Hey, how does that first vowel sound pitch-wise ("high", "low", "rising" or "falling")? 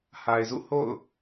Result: low